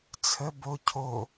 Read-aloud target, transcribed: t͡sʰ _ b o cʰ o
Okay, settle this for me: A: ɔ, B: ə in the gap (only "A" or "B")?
B